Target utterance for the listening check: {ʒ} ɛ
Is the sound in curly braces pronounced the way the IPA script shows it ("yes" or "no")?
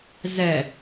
no